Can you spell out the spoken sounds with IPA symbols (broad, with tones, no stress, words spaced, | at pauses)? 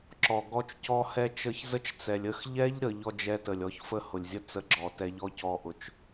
ǁɔ˨ɡɔ˧t͡ʃcɔ˧hɛ˧ t͡ʃə˧çzə˦t͡ʃt͡sɛ˨lʲ ə˦˨xʎɛ˦ʎ ɾə˨˦ʎɔ˦d͡ʒɛ˦tə˨lʲ ɔ˧çfə˦ hʊ˨lʲzʲə˦t͡sə˧ ɡ͡ǁɔ˨tɛ˧ ʎɔ˦cɔ˧ʔʊ˨t͡ʃ